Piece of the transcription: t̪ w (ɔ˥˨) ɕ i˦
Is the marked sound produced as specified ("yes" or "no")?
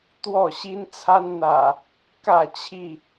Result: yes